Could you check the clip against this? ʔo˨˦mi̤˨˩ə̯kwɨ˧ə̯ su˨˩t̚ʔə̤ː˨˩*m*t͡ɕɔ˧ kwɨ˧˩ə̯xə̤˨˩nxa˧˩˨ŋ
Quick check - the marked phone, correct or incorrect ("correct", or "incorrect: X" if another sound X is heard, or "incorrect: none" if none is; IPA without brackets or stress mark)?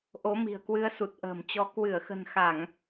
correct